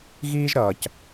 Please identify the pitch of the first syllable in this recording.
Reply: high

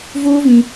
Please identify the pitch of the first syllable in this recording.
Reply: high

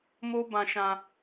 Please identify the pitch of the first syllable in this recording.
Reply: high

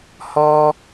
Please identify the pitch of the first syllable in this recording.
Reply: high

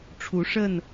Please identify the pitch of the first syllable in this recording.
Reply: rising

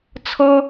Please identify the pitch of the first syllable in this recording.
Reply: high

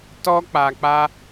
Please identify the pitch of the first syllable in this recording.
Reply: high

